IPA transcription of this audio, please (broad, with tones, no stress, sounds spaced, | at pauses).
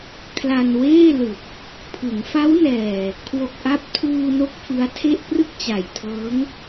kʰ l a˧ n w eː˥˩ l ɯ˨˩ k̚ | pʰ ɯ˩˦ ŋ f a˦˥ w n ɛː˨˩ | kʰ w o˨˩ k̚ ʔ a˦˥ p̚ tʰ uː˧ n o˦˥ k̚ f ɯ˦˥ a̯ tʰ e˥˩ ʔ p r ɯ˥˩ k̚ t͡ɕ a˨˩ j tʰ ɤː˦˥ ŋ